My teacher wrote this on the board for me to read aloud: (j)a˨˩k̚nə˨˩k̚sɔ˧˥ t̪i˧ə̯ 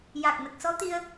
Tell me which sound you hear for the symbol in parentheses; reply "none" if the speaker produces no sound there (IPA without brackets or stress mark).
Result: j